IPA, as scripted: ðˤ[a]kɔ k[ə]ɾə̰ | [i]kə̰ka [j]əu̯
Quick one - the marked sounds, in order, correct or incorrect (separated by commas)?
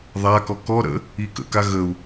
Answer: correct, incorrect, correct, incorrect